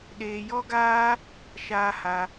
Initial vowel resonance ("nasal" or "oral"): oral